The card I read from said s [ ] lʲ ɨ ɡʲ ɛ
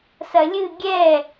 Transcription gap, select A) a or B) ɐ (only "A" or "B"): B